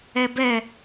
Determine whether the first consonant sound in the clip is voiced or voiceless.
voiced